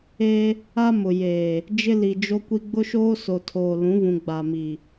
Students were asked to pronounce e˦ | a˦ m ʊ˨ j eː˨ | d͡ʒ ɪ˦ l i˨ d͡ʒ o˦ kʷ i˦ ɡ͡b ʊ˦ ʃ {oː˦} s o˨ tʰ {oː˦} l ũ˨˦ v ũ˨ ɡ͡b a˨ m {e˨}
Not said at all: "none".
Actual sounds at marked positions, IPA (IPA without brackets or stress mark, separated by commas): oː˦, oː˨, i˨